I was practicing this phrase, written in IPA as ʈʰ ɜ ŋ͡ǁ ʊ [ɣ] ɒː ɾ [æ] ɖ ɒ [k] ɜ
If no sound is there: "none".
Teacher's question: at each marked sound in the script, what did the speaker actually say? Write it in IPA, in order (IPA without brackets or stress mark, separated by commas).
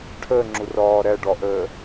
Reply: r, æ, ʔ